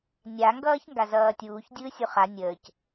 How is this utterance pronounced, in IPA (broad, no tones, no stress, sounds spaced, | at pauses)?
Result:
nʲ a ŋ ɡ ʌː ç ŋ ɡ a z ʌː tʲ uː ç dʲ ɯː sʲ u χ a nʲ əː c